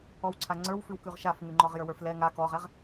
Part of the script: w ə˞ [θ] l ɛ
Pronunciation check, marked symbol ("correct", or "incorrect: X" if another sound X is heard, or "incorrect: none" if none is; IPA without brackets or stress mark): incorrect: f